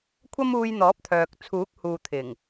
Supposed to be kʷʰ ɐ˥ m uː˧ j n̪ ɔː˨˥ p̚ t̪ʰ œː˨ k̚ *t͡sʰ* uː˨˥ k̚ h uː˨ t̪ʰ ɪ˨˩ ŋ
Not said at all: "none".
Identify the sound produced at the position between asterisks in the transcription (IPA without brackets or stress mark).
t͡sʰ